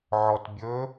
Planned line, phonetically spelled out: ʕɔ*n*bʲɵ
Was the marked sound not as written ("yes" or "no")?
yes